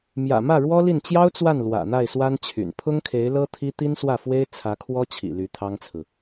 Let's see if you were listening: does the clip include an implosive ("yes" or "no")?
no